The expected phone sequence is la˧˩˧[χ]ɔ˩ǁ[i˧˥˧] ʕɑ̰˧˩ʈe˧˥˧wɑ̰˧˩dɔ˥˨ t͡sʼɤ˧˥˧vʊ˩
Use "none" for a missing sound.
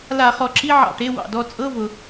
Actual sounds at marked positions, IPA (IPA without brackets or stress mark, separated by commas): χ, i˧˥˧